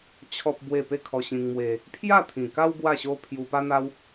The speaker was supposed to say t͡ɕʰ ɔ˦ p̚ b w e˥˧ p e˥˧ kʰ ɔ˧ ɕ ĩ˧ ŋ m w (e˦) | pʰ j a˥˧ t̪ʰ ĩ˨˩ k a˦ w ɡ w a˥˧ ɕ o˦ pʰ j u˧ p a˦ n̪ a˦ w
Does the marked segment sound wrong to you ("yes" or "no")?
yes